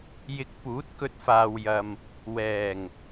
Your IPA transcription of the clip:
j ɪ˧ k̚ p uː˨˥ t̚ k ɵ˧ t̚ f aː˨ w j ɐ˨ m | w ɛː˨˩ ŋ

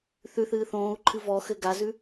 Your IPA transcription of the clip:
θ ʉ θ ɨː θ õː u̯ ǃʰ ɨ v ɔ x ɘ ɡ a z ʉ

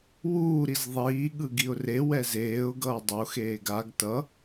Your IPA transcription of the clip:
w uː ɾ i z ðˤ iː ɠ ɯ ɡ i ʊ̯ r e w ɛ z eː ʊ̯ ɡ ʌː dˤ o x eː ɡ a ɡ t ʌ

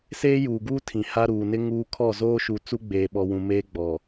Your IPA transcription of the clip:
s eː˦ j uː˨ ɡ uː˦ tʰ ĩ˨ h a˦ ɾ uː˨ n ɪ˦ ŋ uː˦ kʰ ɔ˦˨ z oː˦ ʃ u˨ t͡s u˦ ɡ͡b eː˨ ɓ ɔ˨ w ũ˨ m eː˦ ɡ͡b ɔ˨

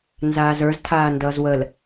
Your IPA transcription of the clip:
n z aː z ə˞ z tʰ aː n d ʌː z w ə l

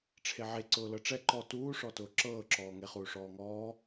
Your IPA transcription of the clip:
ʈ͡ʂʰ e ʕ e ǀ ʊː l ɤ ʈ͡ʂ ɛ ǃ ɔ t uː ʂ ɔ t ʊː ǁ ɤː ǁ ɔː ŋ e χ uː ʂ ɔː ŋ ɔː

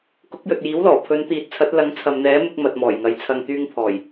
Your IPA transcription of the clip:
k ʊ˨˥ k̚ j ɵ˨ t̚ j iː˨˥ w l ɔː˨˩ pʰ ɵ˨˧ n t̪ iː˨˥ t̚ t͡sʰ ɐ˨˥ t̚ l ɐ˨˥ ŋ t͡sʰ ɐ˨ m n̪ ɛː˨˥ m ɪ˧ k̚ m ɐ˨ t̚ m ɔː˨˩ j ŋ ɐ˨˧ j t͡sʰ ɐ˧ ŋ t̪ yː˧ ŋ pʰ ɔː˨˩ j

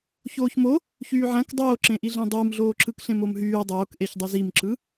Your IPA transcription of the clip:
ç oː ç m o | ç yː ʕ æ̃ k dˤ oː ǁ ẽ ʔ i ɮ ẽ dˤ ɯː m ɮ oː ǁ ɯ k ɬ ẽ m o m ɦ yː dˤ oː k ʔ e ç dˤ y z i m ǁ ɯ

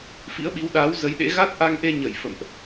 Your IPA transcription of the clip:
f ḭ˧˥ ə̯ ɓ i˨˦ w ɗ aː˨˦ w z ə˨˦ j ɗ ḛ˧˥ ɣ a˦˥ t̚ ʔ a˧ ŋ ʔ e˧ ɲ ə˧˩ j f ə̰˧˨ m ʔ

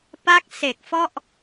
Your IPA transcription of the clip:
p a˦˥ k̚ s e˨˩ k̚ f ɔ˥˩ ʔ

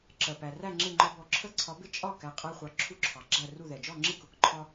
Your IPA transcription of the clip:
ǁ ɜ˩ p æ˩ r æ˥˨ ŋ͡ǁ ɪ˥˨ ŋ͡ǃ ɒ˦ b ɔ˨˦ ǁʰ ə˦ ǀʰ ɒ˨˦ b ɪ˥˨ t͡ʃʼ ɒ˥˨ k æ˨˦ qʼ æ˦ χʷ ɑ˨˦ ǁʰ u˦ ǁʰ ɑ˩ ɡ͡ǁ æ˥˨ r u˥˨ ð ɛ˩ d͡ʒ ɔ˥˨ ŋ͡ǁ ɪ˥˨ k ʊ˨˦ k ǃʰ ɒ˦

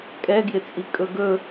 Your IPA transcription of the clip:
kʼ ɛ ɡ j ɪ t͡sʼ i kʼ ɵ ɡ ɵ

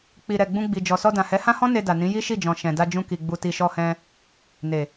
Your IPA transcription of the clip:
k͡p i˨ ɾ ɛ˨ ɡ͡b ũ˧ ɡ͡b i˨ d͡ʒ ɔ˨ s ɔ˧ d ã˨ h ɛ˨˦ h ã˦ h ɔ̃˦ n e˧ d a˨ n ĩ˨˦ j i˦ ʃ i˦˨ d͡ʒ ɔ̃˨ ʃ ɛ̃˨ d a˧ d͡ʒ ũ˧ k i˨ ɡ͡b u˨ t i˨ ʃ ɔ˧ h ɛ̃˧ | n e˨

